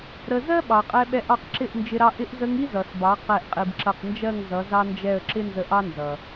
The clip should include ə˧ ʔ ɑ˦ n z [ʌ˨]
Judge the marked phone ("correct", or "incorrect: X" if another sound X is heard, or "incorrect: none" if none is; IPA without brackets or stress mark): correct